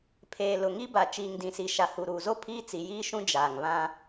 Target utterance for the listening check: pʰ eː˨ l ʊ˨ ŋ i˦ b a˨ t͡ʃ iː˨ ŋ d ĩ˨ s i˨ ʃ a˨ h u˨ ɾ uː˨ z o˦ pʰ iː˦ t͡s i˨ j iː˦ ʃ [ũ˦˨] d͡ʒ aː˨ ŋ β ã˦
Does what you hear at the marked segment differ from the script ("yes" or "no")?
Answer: yes